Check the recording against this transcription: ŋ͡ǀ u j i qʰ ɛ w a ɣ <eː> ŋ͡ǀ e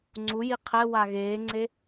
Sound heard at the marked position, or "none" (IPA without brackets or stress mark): eː